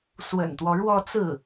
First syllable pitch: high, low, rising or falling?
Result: low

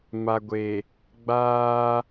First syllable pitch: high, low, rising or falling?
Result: low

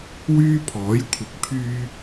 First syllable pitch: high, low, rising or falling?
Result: high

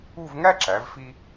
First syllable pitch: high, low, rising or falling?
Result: falling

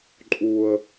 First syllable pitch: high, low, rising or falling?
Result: high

